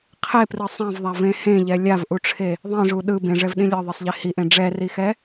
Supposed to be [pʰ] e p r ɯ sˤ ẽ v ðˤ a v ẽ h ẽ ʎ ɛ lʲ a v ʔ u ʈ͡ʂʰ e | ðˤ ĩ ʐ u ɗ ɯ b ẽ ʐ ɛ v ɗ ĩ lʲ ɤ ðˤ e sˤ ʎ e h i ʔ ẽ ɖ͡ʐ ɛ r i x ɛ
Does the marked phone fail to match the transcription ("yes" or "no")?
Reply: yes